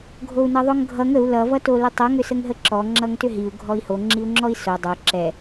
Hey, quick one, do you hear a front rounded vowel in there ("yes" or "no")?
yes